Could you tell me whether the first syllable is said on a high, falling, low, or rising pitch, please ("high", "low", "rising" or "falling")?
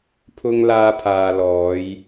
high